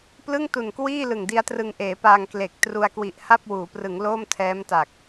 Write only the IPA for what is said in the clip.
p l ɯ˥˩ ŋ t u˨˩ n k w iː˥˩ l ɯ˨˩ ŋ d i˦˥ a̯ t r ɯ˧ ŋ ʔ eː˩˦ p aː˧ ŋ k l e˨˩ k̚ t r u˧ a̯ k w i˨˩ ʔ h a˥˩ p̚ w uː˩˦ p r ɯ˩˦ ŋ l oː˥˩ m tʰ ɛː˦˥ m t a˨˩ k̚

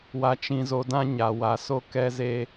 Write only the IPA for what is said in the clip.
w a˨ t͡ʃ ĩ˨ z o˨ d ã˦ ɲ a˨ w a˨ s o˦ k ɛ˦ z e˦

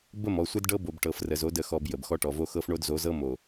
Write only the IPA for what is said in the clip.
b ə˦˨ m ɔ˨ sʷ ə˦ d ɖ ɤ˦ b o˨ b ʈ ɤ˨ f r ə˨ z o˨˦ d ə˨ x ɔ˨ b j ə˨ b x ɔ˦ ʈ ɔ˨ v o˦ x ɤ˦ f ɳ o˦ d z o˨˦ z ɤ˦ m o˨

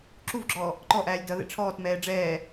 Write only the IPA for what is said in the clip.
ǁ u v ɡ͡ǁ ɔː | ǃ ɔ ʔ æː lʲ d ʌ ð ɛ̰ ʈ͡ʂʰ ɔː t m ɛː ɖ͡ʐ ɛː

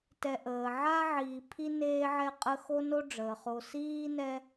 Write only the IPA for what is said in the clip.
t ɛ˨ ʔ əː˩ ʕ a˥ ʕ iː˨ pʰ i˥ n eː˦ ʕ ɛ˦ qʼ ə˦ x o˥ n o˦ ɖ͡ʐ əː˩ χ o˨ s iː˥ n ɛ˦

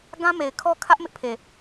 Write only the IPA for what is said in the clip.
ɡ ã˦ m e˨ ɪ̯ kʰ ɔ˦ kʰ ä˦ ʔ m ɪ˦ ʔ pʰ e˨

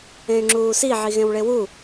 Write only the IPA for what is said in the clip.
ẽ y̯ ŋ͡ǁ uː s i ʕ i ɣ ẽ w ɭ e w u

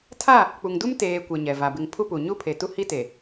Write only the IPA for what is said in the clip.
tʰ a˦˨ | k͡p u˨ ŋ d u˦ m t eː˨ kʷ ɛ˨ ɲ ɛ˨ v a˨ b ɪ˨ ŋ pʰ u˦ p u˨ ɲ u˦ pʰ e˨ t u˦ h i˦ t e˨

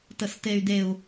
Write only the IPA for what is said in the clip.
t ə s t e y̯ d e u̯

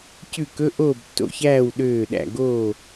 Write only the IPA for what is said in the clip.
c ʉ˦˨ k ɵ˧˥˧ ʔ oː˦˨ b tː o̰˦˨ ç æː˦˨ w ɗ øː˦˨ ɗ æ̰˦˨ ɡ oː˦˨

